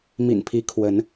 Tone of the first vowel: low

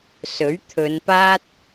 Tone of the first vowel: rising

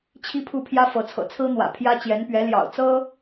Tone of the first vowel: high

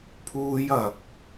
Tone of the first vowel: high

